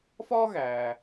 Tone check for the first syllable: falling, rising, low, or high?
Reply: high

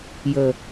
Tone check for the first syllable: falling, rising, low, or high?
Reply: high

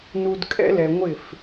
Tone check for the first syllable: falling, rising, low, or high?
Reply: low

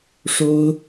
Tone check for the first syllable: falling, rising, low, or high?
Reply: high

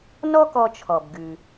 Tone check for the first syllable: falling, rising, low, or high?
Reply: high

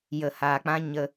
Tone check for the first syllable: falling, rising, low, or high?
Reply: low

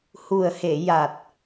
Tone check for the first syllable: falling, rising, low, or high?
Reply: low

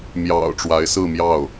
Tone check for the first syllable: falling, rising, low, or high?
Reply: low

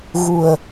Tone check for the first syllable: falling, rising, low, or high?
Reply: low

